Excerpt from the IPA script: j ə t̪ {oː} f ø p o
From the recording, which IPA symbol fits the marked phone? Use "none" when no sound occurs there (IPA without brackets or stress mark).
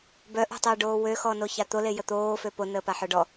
oː